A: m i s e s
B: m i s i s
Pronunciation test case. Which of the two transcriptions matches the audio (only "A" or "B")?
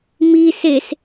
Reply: A